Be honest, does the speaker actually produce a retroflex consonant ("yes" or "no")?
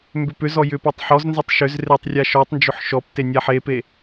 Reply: no